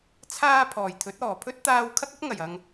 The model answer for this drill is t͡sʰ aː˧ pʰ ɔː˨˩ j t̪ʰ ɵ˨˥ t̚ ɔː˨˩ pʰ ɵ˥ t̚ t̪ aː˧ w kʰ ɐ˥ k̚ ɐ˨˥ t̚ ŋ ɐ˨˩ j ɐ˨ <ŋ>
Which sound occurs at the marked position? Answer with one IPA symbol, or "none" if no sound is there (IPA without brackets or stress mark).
ŋ